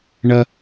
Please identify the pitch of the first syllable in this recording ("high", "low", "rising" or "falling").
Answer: low